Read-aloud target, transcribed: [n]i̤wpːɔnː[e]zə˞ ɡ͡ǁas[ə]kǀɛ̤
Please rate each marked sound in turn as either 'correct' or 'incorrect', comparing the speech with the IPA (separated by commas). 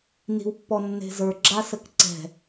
correct, incorrect, correct